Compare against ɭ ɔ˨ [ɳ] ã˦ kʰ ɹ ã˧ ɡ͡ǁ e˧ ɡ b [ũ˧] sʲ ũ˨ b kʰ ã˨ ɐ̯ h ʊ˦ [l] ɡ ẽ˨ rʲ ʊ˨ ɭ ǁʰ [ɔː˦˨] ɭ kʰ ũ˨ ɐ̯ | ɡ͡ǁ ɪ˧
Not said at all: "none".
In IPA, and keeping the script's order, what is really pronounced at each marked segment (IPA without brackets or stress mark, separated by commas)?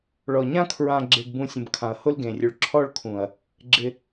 ɲ, ũ˧, l, ɔ˦˨